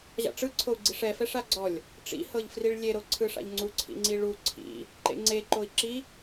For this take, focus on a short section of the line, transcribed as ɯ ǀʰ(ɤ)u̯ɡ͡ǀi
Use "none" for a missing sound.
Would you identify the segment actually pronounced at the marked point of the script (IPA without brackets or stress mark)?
o